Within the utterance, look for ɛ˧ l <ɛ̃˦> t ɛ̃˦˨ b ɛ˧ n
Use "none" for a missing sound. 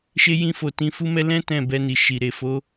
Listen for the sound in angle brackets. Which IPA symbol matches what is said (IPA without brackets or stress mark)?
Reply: ɛ̃˦